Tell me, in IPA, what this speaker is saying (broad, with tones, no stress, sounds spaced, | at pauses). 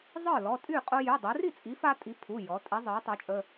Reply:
zˤ ə˞˥˩ l ɔ˩˧˩ tʼ y˥˩ qʼ o˦ j y˩˧˩ dˤ i˩˧ r i˥˩ t͡sʼ i˩˥ f a˦ tʼ i˩˥ pʰ u˩˧˩ j ɔ˩˧ tʼ i˩˥ zˤ ə˞˩˥ tˤ ə˞˩˥ t͡ʃʼ ə˩˧˩